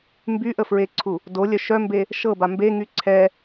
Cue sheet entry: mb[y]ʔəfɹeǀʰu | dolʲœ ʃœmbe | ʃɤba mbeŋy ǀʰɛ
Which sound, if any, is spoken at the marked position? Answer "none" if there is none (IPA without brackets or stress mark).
y